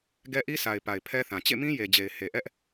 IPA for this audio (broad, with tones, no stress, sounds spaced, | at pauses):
ɡ ɛ˦ ʔ i˦ sʰ a˨ ɪ̯ p a˨ ɪ̯ pʰ ɛ˦ θ ã˨ t͡ɕ ḛ˦˨ m ĩ˦ j e˨ d͡ʑ e˨ ɪ̯ h e˨ ʔ ɛ˦ ʔ